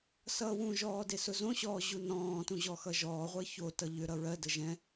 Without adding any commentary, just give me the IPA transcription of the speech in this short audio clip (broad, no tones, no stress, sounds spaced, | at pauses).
s ʌː w ũ ʒ ɔː d e s ʊ z õ ɕ ɔː ʑ u n ɔ̃ː t ũ ʑ ɔ x ʌ ʒ ɔː ʁʷ ɜ ç o t ʌ ʎ ʏ ɾ ʌ ɹ ɜ d ə ʒ ɛ̃